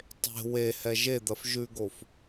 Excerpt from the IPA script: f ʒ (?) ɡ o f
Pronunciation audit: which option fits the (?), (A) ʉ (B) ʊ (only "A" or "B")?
A